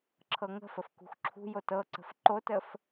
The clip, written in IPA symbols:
ǁʰɤŋə̤fəf kṳxǁʰṳjot ɤǀə̤f ǃotəf

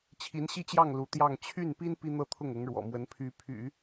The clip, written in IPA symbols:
t͡ɕʰi˧˥nɕi˥˧t͡ɕjɑ˥˩ŋ lu˧˥t̪jɑ˥˧ŋ t͡ɕʰy˥˩npi˥n pi˥n̪ɤ˥t̪ʰʊ˥˩ŋ ʊ˧˥ŋɻwɔ̰˨˩mwə˧˥n pʰy˧˥pʰy̰˨˩˦

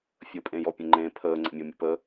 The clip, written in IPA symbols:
fʲəpʼẽjɔ pʲə̃ŋ͡ǃẽ pʰəːŋ͡ǀə̰ mʲɔmʲə̰pə

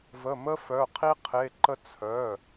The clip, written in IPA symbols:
və˧˥˧mə˥fœ˧˥˧qʰi˥ qʰe˧˥˧ǃə˥ t͡sʰœ˧˥˧

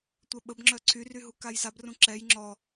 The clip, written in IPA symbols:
tʷœɓəbŋ͡ǁœ ǀʰyry ɦukajsabrũ ǁɛj ŋ͡ǁɔ

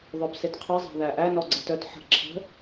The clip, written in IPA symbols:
ðˤœbsetqʰʌ zˤæ̤ðæʔæ nɔɡ͡ǀʌtœt ħə̤ ǁʰə̤

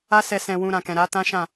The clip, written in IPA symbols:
a˦sɛ˧ sɛ̃˧wũ˧ ɾã˨kɛ̃˨ɾa˨˦ tã˦ʃã˦˨

